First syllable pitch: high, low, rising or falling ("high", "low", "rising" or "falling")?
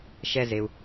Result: high